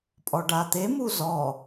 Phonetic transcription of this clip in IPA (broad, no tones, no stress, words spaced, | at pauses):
pʼɔɖat̪e muzɔ